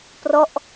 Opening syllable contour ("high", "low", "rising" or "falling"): falling